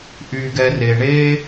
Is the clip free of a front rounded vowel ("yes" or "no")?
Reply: no